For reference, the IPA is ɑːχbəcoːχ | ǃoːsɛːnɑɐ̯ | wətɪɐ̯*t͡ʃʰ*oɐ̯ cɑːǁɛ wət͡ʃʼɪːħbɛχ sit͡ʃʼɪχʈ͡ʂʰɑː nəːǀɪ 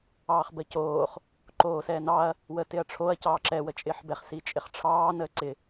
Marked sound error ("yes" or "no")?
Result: yes